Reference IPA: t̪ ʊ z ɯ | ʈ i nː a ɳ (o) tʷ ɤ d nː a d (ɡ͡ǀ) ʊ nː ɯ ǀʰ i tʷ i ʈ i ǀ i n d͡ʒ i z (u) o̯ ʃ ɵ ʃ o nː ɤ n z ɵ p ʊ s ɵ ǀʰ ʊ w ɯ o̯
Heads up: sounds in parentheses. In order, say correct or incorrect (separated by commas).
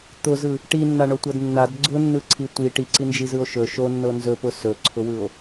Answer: correct, correct, incorrect